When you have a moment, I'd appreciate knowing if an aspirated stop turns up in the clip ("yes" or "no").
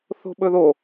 no